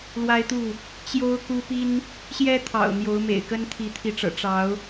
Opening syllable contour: high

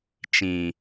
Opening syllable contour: low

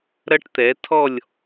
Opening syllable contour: high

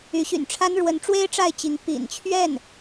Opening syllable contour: rising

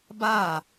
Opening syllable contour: falling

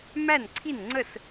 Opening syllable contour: falling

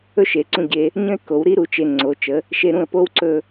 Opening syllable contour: high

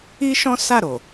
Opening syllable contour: high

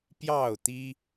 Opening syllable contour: falling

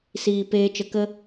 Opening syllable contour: low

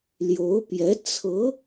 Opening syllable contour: rising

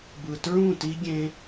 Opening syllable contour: low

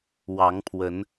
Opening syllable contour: rising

